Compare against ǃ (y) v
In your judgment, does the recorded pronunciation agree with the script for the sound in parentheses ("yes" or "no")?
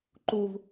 no